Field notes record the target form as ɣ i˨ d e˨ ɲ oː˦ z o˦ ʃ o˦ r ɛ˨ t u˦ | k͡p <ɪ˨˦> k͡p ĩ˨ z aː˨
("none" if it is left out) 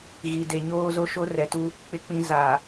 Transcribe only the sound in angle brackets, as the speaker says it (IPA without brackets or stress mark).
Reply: ɪ˨